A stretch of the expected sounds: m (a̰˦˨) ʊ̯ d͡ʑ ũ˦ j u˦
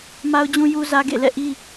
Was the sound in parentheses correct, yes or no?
no